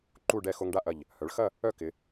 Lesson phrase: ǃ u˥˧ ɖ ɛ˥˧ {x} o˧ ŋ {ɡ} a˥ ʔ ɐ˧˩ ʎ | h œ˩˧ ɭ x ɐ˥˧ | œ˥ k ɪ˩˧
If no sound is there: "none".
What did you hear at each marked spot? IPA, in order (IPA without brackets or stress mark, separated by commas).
x, ɖ